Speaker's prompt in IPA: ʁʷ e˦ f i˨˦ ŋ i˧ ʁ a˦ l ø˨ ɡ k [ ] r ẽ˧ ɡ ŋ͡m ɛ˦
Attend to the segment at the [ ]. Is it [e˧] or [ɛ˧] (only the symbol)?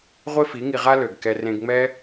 ɛ˧